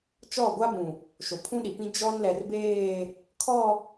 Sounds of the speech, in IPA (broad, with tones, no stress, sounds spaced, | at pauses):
t͡ʃ ɔ˦˨ ɡʷ a˦ b ũ˨ | ʃ o˨ pʰ ũ˦ ɗ i˨ p ĩ˦ d͡ʒ ɔ˦ n l ɛ˨ r b eː˦˨ | kʰ ɔ˦˨